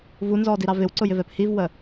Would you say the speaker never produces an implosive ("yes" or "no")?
yes